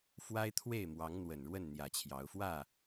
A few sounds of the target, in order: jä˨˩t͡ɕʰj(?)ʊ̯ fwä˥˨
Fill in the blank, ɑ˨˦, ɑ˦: ɑ˨˦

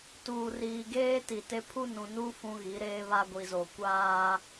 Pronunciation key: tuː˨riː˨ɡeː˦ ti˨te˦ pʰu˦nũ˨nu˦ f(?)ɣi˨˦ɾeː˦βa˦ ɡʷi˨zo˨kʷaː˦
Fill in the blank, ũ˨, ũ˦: ũ˦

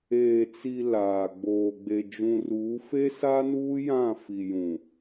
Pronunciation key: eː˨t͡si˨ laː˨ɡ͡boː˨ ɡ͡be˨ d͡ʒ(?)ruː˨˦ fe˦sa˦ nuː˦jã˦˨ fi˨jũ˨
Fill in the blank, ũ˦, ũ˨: ũ˨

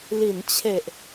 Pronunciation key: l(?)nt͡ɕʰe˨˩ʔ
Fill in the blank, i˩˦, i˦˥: i˩˦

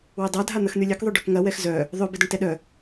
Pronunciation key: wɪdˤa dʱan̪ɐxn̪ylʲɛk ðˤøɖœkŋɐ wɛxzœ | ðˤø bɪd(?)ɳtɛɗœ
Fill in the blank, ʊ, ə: ʊ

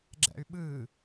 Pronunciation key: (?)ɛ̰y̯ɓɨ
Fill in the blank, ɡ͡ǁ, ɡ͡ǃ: ɡ͡ǁ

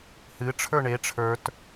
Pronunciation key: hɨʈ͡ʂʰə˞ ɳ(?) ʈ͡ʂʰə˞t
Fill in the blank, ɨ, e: e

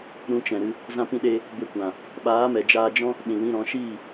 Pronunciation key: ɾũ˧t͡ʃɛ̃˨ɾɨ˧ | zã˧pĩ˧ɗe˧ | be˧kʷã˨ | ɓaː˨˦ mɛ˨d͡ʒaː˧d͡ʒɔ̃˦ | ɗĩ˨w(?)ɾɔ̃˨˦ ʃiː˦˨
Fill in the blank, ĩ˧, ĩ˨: ĩ˧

